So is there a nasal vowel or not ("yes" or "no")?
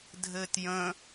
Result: yes